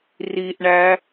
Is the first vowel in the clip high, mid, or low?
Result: high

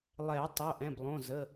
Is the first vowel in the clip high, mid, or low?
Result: mid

